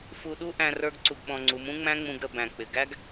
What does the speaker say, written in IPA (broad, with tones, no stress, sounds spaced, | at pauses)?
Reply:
f u˧ ɗ u˦ ʔ æ̃˧ r ə˞˦ ɡ ǀ u˧ ɡ ɓ ɔ̃˧ ŋ͡ǀ u˨˦ m ũ˦ ŋ͡m æ̃˦ ŋ͡m ũ˧ ɡ ɾ ə˧ b æ̃˨ k͡p ɪ˨ ɡ æ˦ ɡ